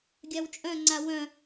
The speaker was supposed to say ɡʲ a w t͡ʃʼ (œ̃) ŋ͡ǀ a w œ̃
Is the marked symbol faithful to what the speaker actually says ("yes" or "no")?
yes